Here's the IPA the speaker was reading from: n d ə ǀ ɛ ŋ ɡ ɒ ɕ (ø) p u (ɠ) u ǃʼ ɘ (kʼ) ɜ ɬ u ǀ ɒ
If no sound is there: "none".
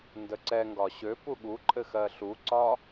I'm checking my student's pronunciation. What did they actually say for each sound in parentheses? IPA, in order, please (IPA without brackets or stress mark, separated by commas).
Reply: ø, ɠ, x